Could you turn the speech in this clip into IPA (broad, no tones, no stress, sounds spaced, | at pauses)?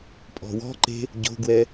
pʼ ɔ̤ w ɔ̤ ǃ e̤ | ɟ o̤ ɡ w ɛ